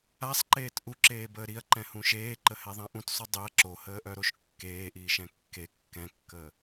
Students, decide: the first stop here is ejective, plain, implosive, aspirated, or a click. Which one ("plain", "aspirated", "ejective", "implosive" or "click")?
click